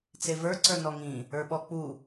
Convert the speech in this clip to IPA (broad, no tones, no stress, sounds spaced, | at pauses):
t͡s e v ə˞ ǀ ə˞ n ɔ ŋ ĩ | ə˞ ɓ ɔ k͡p u